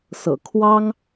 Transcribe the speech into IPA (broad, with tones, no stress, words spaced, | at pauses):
sɤ̰˨˩ kʰwɑ˥ŋ